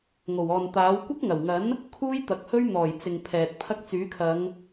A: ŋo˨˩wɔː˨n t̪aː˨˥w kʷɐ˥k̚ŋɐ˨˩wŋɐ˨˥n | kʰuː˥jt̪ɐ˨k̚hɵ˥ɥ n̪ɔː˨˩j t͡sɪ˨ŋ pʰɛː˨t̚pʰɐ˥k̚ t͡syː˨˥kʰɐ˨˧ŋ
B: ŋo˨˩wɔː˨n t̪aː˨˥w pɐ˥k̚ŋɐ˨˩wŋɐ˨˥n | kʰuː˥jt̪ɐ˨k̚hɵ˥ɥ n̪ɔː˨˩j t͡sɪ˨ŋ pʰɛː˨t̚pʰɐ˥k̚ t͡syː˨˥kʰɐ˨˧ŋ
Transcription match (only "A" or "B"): A